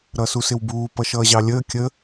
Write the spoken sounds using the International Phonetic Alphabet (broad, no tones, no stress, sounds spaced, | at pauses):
ɾ ʌ s u s ɪ w b uː p ʌ ʃ ʌː ʑ ɑ lʲ əː kʲ ə